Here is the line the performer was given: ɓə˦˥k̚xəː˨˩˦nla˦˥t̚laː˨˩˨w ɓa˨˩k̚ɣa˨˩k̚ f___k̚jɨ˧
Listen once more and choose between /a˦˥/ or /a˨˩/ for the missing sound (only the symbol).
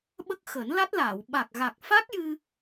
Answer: a˦˥